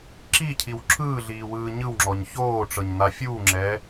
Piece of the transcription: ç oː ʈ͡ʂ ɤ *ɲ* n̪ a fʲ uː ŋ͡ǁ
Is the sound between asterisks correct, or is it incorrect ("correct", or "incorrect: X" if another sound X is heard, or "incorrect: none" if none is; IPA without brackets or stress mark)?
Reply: correct